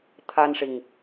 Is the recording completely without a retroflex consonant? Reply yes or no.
no